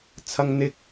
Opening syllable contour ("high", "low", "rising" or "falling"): high